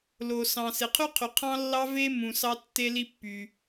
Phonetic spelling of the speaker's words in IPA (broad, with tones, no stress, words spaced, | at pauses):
lo˩ sɑ̃˩ se˩qʰy˥qʰy˩ qʰɑ̃˥lːɑ˥ ve˥mũ˩ sɑ˥tːe˥li˥pːy˩